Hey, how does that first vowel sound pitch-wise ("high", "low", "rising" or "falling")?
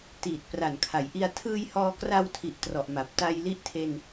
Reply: low